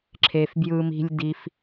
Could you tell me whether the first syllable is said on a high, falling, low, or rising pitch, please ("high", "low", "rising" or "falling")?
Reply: low